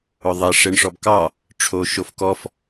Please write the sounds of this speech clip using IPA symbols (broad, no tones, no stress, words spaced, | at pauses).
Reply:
ʊðˤe ʂeɳʂɔbkɑ | ʈ͡ʂʰoʃofkɔf